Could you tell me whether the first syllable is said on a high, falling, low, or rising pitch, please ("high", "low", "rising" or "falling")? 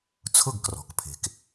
falling